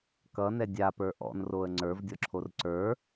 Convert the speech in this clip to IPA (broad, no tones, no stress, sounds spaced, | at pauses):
k ʌ n ɛ dʲ a p ə˞ ʔ ɔ̰ n r o ə̯ ŋ͡ǀ ə˞ v dʲ ɔ ǁʰ o r ǀ ə˞